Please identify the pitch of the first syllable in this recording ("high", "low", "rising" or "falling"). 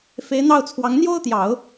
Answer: rising